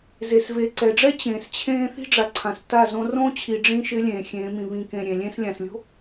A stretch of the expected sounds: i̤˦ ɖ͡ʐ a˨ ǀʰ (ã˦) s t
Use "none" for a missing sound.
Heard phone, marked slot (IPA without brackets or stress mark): ã˨